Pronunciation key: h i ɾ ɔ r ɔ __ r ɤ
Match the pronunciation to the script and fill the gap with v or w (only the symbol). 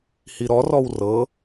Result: w